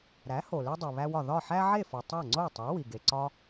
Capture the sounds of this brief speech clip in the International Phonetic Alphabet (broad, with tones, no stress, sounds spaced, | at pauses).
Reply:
ɾ æ˩˥ h o˩ l e˧ dˤ u˩ β æ˧ w ɒ˩ ð ɒ˥˩ ħ æ˥ ʕ e˥˩ f o˩ tˤ æ˥˩ ŋ͡ǀ o˥˩ tˤ e˩˥ w i˩ ɡ e˩ ǀ ɒ˧